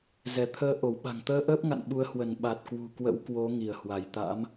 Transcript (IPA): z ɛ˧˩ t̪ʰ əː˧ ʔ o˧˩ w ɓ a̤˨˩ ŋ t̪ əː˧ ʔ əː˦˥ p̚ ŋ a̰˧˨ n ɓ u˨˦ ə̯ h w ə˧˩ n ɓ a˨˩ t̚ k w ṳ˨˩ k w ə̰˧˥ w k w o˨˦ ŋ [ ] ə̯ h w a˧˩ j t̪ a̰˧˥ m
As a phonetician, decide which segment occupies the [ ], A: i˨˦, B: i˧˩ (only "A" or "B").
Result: B